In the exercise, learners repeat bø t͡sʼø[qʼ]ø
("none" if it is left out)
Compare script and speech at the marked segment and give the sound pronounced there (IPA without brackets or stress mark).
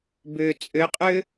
qʼ